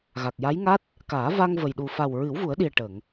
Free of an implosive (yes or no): no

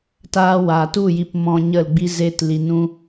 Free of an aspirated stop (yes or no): yes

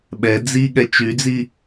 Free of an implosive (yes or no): no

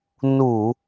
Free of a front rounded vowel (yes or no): yes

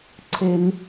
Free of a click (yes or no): no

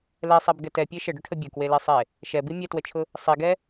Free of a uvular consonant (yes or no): yes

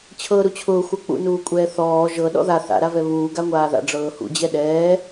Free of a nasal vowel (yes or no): yes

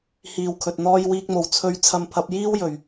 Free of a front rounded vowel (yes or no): yes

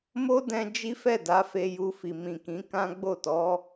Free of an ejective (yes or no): yes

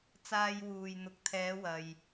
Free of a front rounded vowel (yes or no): yes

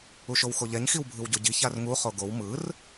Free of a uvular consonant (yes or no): no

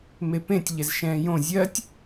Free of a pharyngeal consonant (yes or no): yes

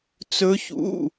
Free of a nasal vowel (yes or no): yes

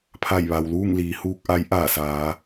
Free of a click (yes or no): yes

